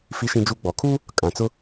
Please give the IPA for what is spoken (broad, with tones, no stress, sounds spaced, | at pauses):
f i˦ ʃ ĩ˦ d͡ʒ u˦ ɡ͡b ɔ˨˦ kʰ u˦ | kʼ ã˨ t͡s ʊ˦